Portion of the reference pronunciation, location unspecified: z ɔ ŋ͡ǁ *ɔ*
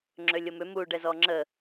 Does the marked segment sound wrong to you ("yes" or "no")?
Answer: yes